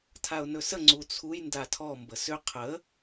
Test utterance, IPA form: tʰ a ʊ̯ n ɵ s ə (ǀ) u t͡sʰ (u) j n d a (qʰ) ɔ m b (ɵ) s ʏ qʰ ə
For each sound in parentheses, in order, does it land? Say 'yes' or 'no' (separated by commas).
no, yes, no, no